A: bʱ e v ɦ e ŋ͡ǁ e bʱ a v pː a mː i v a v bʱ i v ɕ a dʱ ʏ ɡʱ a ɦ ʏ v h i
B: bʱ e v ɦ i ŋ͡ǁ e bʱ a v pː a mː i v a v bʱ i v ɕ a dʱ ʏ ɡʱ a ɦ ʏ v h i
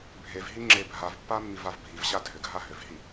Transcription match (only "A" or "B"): B